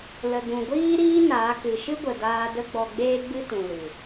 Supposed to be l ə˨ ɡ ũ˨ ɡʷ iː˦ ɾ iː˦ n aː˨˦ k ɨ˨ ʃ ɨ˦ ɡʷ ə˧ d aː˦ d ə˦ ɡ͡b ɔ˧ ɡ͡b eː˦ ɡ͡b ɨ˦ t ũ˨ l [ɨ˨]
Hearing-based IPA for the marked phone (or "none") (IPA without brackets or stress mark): ɨ˨